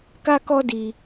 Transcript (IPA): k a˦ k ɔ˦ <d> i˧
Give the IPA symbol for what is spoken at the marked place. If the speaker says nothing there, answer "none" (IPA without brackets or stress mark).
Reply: d